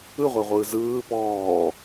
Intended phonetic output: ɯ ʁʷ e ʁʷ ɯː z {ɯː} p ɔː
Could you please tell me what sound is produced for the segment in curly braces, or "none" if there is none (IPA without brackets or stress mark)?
ɯː